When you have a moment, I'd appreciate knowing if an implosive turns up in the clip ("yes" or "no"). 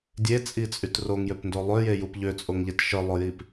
no